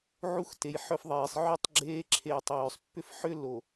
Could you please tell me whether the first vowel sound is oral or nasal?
oral